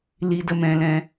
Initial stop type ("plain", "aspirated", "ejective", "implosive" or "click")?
plain